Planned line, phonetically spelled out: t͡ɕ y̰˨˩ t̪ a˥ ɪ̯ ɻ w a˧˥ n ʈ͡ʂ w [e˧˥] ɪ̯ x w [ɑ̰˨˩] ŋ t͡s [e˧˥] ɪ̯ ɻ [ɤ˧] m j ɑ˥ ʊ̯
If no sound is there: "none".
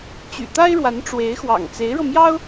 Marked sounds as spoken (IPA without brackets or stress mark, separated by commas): e˧˥, ɑ̰˨˩, e˧˥, ɤ˧